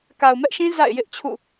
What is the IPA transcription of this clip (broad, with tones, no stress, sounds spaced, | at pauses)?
k a˨ ʊ̯ m ɛ˦ ʔ ʃ ĩ˦ z a̰˦˨ ɪ̯ j ɪ˦ ʔ t͡ɕʰ ṵ˦˨